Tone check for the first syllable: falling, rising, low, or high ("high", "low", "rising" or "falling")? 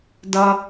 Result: low